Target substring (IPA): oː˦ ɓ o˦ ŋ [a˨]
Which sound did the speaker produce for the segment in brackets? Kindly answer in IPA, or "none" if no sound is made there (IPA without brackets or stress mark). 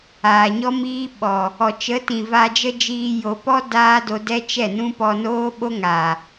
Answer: a˨